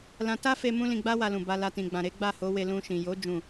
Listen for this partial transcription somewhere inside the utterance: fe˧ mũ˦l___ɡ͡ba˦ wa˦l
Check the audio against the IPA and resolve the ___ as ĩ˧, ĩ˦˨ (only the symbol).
ĩ˧